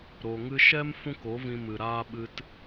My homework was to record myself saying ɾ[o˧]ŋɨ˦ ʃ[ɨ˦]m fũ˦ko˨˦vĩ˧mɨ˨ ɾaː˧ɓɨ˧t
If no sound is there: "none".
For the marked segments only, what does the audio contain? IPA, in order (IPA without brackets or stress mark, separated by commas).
o˧, ɛ˦